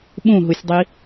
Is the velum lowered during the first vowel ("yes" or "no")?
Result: yes